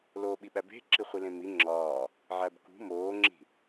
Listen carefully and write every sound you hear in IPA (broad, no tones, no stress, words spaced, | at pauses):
loːɓiɓæbe̤ ǁiχʷilẽmi ŋ͡ǁɒː | ʕæbkṳ moːŋ͡ǁi̤